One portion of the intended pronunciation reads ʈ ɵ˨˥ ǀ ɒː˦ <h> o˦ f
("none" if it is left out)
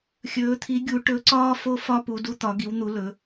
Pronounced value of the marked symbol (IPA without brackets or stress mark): f